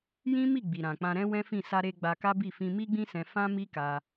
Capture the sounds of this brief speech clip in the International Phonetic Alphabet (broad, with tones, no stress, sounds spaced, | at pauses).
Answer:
j ĩ˦ m i˦˨ ɡ͡b i˨ ɾ ã˨ k͡p ã˧ ɾ ɛ̃˦ w ɛ̃˦ f ĩ˦˨ s a˧ ɾ e˧ ɡ͡b a˧ k a˦ b i˦˨ f ĩ˧ m i˦ ɡ͡b ĩ˦ s ɛ̃˧ f ã˦ m i˦ k a˧